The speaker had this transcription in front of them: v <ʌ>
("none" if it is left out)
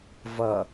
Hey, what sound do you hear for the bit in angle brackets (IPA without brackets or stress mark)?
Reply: ʌ